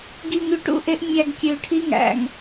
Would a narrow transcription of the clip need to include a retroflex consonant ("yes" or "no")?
yes